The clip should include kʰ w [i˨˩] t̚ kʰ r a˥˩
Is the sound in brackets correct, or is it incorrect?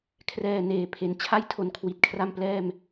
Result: correct